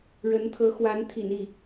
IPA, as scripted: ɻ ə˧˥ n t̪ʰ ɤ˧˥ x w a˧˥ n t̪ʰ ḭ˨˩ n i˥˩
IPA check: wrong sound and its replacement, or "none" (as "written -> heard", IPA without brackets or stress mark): none